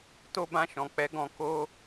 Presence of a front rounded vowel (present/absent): absent